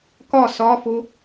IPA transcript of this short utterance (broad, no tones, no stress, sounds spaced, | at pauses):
k ɒ s ɒ f o